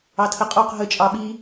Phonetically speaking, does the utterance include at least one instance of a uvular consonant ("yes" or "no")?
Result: yes